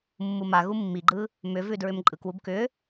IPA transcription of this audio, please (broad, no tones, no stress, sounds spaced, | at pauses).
mː u m a ɣ u mː i ɡ͡ǃ ɯ | m ʏ v ʉ d ɹ ʏ m ǃʼ ɯ k w u b k ʏ